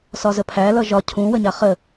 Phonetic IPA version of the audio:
s ɒ z ə pʰ æ l ʌ ʒ ɒ cʰ ũ w ə ɲ a χ ə

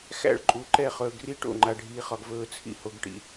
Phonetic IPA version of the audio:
x æ̰˦˨ ɭ ǃʼ u˨ ǃ ɛ˦˨ χ ɵː˨ ɡ r i˦ ʈ o̰˦˨ ŋ͡ǃ a˨ ɖʱ iː˨ χ ɒ˨ ɡ v ɵː˨ t͡sʰ ḭ˦ h o˨ ɡ ʈ ḭ˨

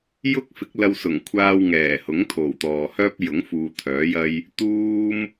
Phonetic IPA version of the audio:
j ʊ˥ k̚ f ɪ˨˥ k̚ l ɐ˧ w s ʊ˨˩ ŋ kʷʰ aː˧ w ŋ ɛː˨˩ h ʊ˨˥ ŋ t̪ʰ o˨˩ w t̪ ɔː˨ h œː˥ p̚ j ʊ˨˥ ŋ f uː˨ t̪ʰ œː˨˥ j ɐ˥ j | t̪ uː˥ m

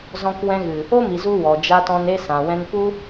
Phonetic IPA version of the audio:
z ɔ̃˧ k w ɛ̃˧ ɣ ɨ˨ | o˦ m i˨ z u˧ w ɔ˨ d͡ʒ a˧ t ɔ̃˧ n e˧ s ã˨ w ɛ̃˧ n p u˦

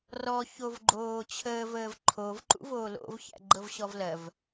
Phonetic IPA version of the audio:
r ɔ ç o v ɡ͡ǃ oː t͡ɕʰ əː v əː v ǃʰ o v ǃ ṵ v oː l o̰ v ç æ̰ ɡ͡ǃ ɤ v ɕ ɔ v l ɜ v

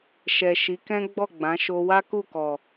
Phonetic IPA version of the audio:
ʃ ɛ˨ ʃ i˨˦ k ɛ̃˦ ɡ͡b ɔ˦˨ ɡ͡b ã˨˦ ʃ o˧ w a˦ k u˦˨ k ɔ˨

